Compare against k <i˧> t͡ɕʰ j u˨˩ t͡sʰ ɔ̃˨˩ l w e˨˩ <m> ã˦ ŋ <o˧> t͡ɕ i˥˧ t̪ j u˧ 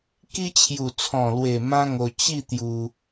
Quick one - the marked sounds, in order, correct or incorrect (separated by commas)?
correct, correct, correct